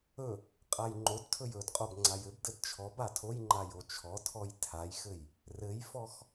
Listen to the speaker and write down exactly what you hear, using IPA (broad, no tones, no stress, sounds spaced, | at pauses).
ɵ | qʼ a j ŋ͡ǃ o d tʰ ɵ j ɵ d qʼ o b ŋ͡ǀ a j ɘ b d ɘ d t͡ʃʰ ɔ b a tʰ o j ŋ͡ǃ a j o t͡ʃʰ ɔ tʰ ɔ j tʰ a j x ɘ j | r ɘ j f ɔ x